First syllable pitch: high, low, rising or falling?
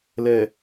low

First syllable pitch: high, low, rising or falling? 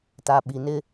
low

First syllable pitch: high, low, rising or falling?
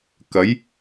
rising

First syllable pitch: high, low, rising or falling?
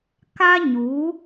high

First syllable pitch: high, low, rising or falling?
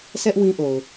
high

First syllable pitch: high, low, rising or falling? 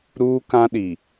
high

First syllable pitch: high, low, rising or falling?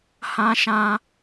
high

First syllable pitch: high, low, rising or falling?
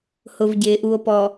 low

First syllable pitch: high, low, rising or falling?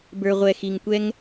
low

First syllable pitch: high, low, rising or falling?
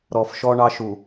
low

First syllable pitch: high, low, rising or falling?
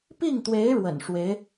falling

